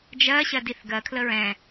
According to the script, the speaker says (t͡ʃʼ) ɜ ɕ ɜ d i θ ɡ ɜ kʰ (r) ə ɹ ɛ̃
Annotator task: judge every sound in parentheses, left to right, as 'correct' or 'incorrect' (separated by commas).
incorrect, incorrect